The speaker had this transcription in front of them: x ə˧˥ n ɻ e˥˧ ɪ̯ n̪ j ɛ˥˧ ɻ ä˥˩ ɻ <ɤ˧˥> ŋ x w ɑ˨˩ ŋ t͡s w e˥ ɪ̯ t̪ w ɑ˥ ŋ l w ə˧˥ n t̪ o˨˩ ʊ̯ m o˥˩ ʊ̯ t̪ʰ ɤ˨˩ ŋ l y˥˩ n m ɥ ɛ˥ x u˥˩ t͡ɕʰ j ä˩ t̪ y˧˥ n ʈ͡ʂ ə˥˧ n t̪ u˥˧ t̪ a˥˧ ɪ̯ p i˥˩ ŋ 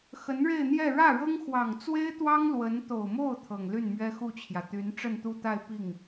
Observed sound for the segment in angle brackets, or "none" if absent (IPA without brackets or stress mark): ɤ˥